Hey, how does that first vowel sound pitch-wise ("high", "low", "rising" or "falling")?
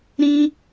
high